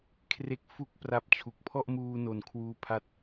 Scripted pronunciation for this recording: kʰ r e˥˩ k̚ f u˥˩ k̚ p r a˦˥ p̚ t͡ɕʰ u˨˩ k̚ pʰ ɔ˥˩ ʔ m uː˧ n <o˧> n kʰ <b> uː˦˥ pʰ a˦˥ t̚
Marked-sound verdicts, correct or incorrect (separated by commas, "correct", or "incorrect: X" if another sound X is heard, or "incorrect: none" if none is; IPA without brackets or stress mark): incorrect: o˨˩, incorrect: w